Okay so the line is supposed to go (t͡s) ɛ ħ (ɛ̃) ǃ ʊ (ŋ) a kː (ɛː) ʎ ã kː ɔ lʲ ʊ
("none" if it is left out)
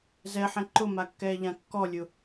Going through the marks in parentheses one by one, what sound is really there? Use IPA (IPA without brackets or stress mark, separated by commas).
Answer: z, ɛ̃, m, ɛː